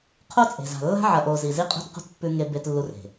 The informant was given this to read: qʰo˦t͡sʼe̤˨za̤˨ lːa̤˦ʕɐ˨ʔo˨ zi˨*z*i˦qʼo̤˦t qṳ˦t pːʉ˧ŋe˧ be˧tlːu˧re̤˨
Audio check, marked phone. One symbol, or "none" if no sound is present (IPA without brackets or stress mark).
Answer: z